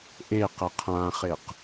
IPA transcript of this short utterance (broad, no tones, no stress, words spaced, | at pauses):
ʔe qəqʰãχeq